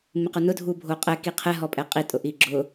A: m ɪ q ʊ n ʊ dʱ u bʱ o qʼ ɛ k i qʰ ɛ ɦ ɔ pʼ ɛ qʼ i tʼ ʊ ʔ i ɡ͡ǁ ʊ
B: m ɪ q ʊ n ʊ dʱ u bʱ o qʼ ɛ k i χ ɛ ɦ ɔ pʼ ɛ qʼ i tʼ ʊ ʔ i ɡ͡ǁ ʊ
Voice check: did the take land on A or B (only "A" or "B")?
A